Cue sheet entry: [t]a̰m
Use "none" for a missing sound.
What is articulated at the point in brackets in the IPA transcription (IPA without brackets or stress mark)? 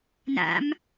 n